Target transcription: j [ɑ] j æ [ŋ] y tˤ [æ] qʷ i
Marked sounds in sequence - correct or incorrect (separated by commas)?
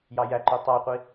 correct, incorrect, correct